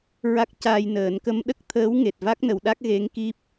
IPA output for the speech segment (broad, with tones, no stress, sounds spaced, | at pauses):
ɹ a˦˥ k̚ c aː˧ j n əː˨˩˦ n k ə˧˥ m ɗ ə˦˥ k̚ t̪ʰ əː˧˥ w ŋ e˨˩ t̚ v a˦˥ k̚ n ə˨˩˨ w ɗ a˦˥ k̚ ɣ e˧˥ ŋ k i˦˥ p̚